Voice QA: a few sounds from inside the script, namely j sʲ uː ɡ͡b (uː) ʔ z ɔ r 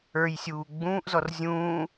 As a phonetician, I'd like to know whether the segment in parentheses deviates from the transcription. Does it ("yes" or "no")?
yes